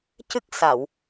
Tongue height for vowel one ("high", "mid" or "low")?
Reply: high